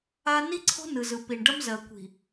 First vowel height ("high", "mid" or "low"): low